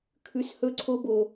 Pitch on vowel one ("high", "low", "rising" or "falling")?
low